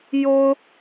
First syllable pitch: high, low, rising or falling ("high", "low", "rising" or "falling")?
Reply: high